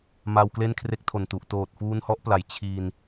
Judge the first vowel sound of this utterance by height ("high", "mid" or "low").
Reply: low